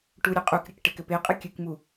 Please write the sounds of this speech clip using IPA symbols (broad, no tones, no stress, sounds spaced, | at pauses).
ʈ u ɾʲ ɘ qʼ u k ɾʲ ɘ k ʈ ɘ k ɘ p e qʼ ɨ kʲ ɨ k m u